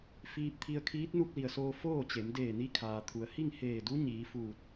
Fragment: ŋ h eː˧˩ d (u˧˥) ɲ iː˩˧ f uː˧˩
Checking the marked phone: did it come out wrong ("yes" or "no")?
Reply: no